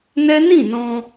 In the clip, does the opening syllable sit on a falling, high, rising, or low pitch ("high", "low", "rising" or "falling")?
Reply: high